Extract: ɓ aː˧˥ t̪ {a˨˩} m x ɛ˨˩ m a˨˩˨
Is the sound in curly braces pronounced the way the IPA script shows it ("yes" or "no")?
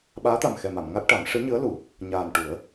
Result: yes